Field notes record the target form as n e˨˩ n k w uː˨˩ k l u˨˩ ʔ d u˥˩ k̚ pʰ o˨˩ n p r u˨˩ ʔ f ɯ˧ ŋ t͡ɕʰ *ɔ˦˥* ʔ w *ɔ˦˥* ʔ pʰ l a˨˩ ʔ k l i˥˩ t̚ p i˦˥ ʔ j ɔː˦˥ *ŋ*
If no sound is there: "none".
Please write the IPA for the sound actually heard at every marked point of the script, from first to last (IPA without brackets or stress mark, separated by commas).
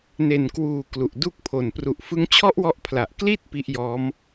ɔ˦˥, ɔ˦˥, m